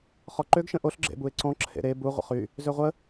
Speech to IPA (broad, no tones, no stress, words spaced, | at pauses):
χɔǃøɡ ʃə̃ʔoɬ ɡ͡ǁḛbue̯ǀɔ̃ ǁʰḛɾe bu ʁʷə̰χy | zøʁʷə